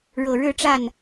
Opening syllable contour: low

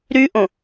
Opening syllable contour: high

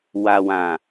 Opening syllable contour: low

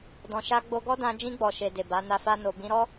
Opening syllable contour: low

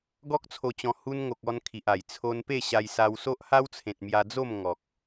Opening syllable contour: high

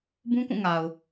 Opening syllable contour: high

